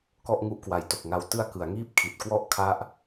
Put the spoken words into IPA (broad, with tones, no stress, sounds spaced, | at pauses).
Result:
k ɔ˥˩ ʔ ŋ u˦˥ ʔ k w a˩˦ j t o˨˩ k̚ ŋ a˧ w t ɯ˦˥ a̯ k ɯ˩˦ a̯ ŋ iː˥˩ p̚ kʰ i˨˩ t̚ k w ɔ˥˩ ʔ kʰ a˦˥ ʔ